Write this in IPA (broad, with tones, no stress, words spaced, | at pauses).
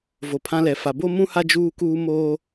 vo˨pʰã˦lɛ˨ fa˨ bo˦mũ˦ha˦ d͡ʒuː˦kuː˦moː˦